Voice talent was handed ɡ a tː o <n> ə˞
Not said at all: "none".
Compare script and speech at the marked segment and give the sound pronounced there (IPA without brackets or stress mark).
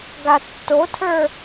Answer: tʰ